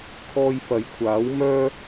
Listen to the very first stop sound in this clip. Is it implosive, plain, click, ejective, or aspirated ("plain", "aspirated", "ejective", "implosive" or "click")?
aspirated